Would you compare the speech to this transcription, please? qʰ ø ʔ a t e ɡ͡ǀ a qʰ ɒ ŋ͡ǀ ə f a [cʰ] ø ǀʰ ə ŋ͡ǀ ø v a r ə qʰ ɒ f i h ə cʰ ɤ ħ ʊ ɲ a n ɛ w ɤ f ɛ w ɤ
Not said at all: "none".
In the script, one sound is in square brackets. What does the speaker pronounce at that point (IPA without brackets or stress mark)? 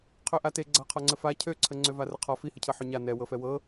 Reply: cʰ